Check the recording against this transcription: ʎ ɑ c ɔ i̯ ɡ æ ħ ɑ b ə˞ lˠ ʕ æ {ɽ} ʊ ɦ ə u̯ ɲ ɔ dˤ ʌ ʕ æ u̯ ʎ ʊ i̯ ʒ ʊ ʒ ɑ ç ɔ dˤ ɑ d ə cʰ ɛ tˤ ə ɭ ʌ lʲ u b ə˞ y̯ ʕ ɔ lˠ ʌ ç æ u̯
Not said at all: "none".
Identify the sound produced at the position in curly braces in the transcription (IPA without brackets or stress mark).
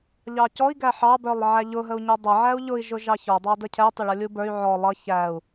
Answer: ʎ